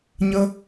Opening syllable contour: high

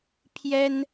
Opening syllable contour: high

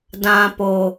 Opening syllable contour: low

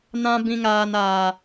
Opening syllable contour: high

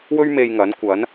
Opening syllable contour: high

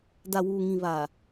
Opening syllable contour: low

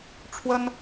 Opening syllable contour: high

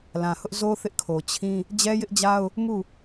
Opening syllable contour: low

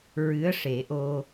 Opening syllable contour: rising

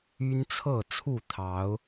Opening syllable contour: high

